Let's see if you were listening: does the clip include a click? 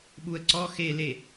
yes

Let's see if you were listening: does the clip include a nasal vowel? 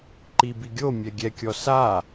no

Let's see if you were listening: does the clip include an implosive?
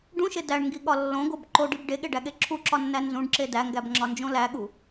yes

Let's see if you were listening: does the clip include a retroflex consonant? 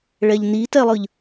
yes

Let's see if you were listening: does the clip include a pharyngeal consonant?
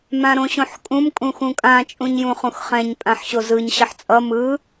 yes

